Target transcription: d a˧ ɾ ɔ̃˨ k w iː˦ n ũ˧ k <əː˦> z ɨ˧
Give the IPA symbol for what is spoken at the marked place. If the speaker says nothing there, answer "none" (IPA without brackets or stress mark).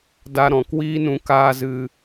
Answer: aː˦